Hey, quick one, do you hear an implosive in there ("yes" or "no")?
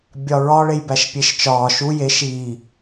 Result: no